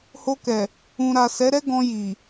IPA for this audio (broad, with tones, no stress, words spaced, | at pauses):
ho˧kɛ˨ | ũ˨ɾa˨ sɛ˨˦ɾɛ˦ɡɔ̃˧ ji˨